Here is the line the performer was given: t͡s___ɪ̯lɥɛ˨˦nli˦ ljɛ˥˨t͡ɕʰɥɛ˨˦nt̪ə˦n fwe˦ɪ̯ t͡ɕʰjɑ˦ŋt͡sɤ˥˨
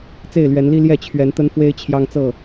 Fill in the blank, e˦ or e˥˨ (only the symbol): e˥˨